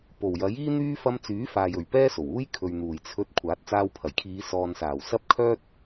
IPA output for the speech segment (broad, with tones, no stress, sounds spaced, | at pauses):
p o˨˩ w j ɐ˨˥ j iː˥ n̪ yː˥ f ɐ˧ m t͡s yː˨˥ f aː˨ j ɵ˨˩ ɥ p ɛː˥ s o˨˩ w uː˥ j kʰ ɵ˨ ɥ n̪ uː˨˩ j t͡sʰ ɵ˧ t̚ kʷʰ aː˨˥ t̚ t͡s aː˧ w pʰ ɐ˨˩ j kʰ iː˨˧ s ɔː˨ n s aː˨˩ w s ɐ˥ p̚ kʰ œː˥ t̚